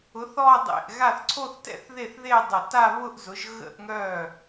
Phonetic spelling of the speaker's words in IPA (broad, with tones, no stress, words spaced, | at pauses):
ʊ˩˥θɔ˥˧dˤḛ˧˩ʔ ɣa˥˩θǀʰo˥˧θtɛ̰˥˧θ ðe˥˩θðe˥˧dˤə˧˩ta˥˧ βʊ˥˧ʔzʊ˩˥ʒ ɣə̰˥˧ʔŋœ˥˩